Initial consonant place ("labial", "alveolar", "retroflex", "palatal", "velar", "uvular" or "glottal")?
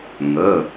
velar